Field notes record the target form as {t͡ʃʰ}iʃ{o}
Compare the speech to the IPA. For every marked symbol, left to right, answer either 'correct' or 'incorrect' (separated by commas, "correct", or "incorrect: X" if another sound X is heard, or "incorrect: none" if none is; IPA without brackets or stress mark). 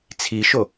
incorrect: t͡sʰ, correct